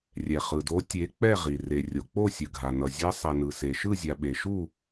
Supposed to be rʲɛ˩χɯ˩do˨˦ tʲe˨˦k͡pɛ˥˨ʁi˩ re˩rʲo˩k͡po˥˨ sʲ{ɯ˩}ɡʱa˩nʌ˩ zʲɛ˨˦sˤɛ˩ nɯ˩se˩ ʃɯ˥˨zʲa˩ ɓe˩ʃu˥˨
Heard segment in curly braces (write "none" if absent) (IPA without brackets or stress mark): ɯ˩